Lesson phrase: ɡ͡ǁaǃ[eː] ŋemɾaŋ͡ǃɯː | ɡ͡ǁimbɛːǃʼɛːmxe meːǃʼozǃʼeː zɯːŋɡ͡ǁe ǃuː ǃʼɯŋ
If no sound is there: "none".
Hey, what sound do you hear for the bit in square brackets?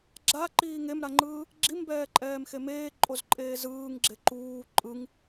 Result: iː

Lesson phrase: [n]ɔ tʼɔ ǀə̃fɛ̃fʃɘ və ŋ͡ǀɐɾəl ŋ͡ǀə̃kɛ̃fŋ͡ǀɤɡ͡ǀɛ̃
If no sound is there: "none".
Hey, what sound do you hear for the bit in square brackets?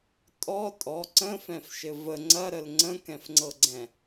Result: tʼ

